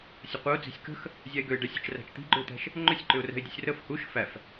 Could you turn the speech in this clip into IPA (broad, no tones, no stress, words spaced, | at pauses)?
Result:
sʲəqʷəʊ̯d͡zi̤sʲ kə̤x | zʲæɪ̯ɡøɪ̯ ɖɛsʲə̤t͡ʃ ræ̤t͡ʃt̪i̤ɡ͡ǃʏʊ̯t̪æ̤ʃ | ŋ͡ǃʏsʲǃʏʊ̯rɛ̤ɪ̯dʲəsʲ rəf huʃ fæf